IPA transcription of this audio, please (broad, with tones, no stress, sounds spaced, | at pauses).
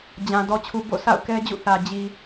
d͡ʑ ã˨ d ɔ˨ t͡ɕʰ u˨ b o̰˦˨ sʰ a̰˦˨ ʊ̯ k ɛ˦ d͡ʑ ṵ˦˨ θ ä˨ d͡ʑ i˨